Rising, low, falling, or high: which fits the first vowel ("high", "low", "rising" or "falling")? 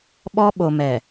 high